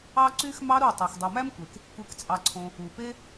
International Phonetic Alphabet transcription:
ɑ˦ ǀy˧xmɑ˧ ɾu˦˨ tˤæ˨xdˤu˨mæ˦mkʷe˨k | kʷe˧kt͡sʼɑ˧ǀʰõ˧ | u˨pe˦

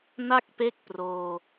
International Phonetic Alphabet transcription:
na˥˩k̚pe˦˥k̚ proː˧

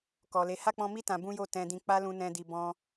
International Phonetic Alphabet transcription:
kɔ˨le˨˦ ha˦˨k͡pɔ̃˧mi˦ tã˧bũ˦jo˦˨ tɛ̃˧dĩ˧k͡pa˦ lũ˧nɛ̃˧di˧ bɔ̃˧

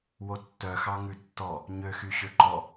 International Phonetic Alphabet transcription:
wotːœ xɑŋʉtːɔ | ɲø xyɕøǃɔ

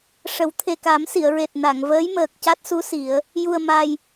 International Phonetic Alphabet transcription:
ʂə˨˩˦w t̪ʰe˨˩ka˨˩˦m si˨˩˨ə̯ɹe˨˩t̚ na˨˩˨ŋ vəː˧˥jməː˨˩k̚ca˦˥t̚su˧˥ si˨˩˦ə̯ | ju˨˩ə̯ma˨˩j

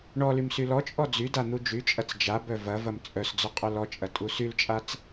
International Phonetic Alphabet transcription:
ɳɔlym sylɔt͡ʃʼɔ d͡zy dan̪ud͡ʒyt͡ʃʼɐt͡s d͡ʒabœ vɐvɐm t͡sʼœsd͡zʊ qʼœlɔt͡ʃʼɐ tʼusylt͡ʃʼat͡s

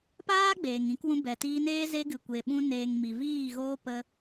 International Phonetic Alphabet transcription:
paː˦ ɡ͡beː˨ŋĩ˨˦kwũ˧ bɛ˨tiː˧neː˦ ze˧ɡɨ˨kʷe˨ ɓũ˧ neː˨ŋ mi˨viː˦˨ɣoː˦ pə˧

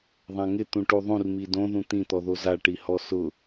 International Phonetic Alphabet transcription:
ðˤãŋɪ t̪ũʈuðˤũr midõ ðũt̪ĩ t̪ɔðoza ʈihɔsʊ

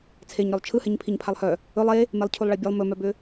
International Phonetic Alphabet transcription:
t͡sʰeɲɾœlˠ t͡ʃʰɯhɛɲ pʰiɲpʰalˠhœ | ɵlˠ e | melˠcʰulˠɭɛbʲɛlˠ mɵmœbʏ

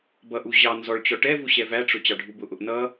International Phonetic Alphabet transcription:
bʌʔu ʑɑ nzɔɭt͡ɕɔ ʈɛvu ɕɛvæʈ͡ʂʊ t͡ɕɑɖʱubʊʔʊʔ nʌ

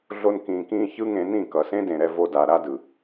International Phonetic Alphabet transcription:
ɮo˦nkĩː˧kĩː˦ çɯ˦ŋẽ˧nĩ˦˨ kʌ˨sẽ˦dẽ˨ɾɛ˧ vo˧da˨ ɾa˦dɯ˨

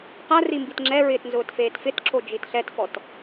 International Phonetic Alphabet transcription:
qari mbitŋ͡ǁɛɹɪːt nzʊːtfeːtfɪtǁʰo d͡ʒitɬɛtfɔt

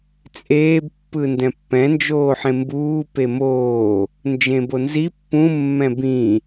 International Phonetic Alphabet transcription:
t͡sʼeːb pːɯndɛ̃pːɛ̃ nd͡ʒoːħẽmbuː pemoː | nd͡ʒẽbonzi pːũ mːɛ̃bĩ

